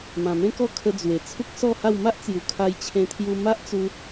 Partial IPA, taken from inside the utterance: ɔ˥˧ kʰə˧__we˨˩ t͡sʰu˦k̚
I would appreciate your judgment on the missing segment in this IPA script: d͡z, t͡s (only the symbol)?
d͡z